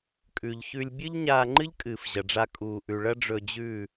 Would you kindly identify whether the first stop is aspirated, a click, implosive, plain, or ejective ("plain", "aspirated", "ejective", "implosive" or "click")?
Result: ejective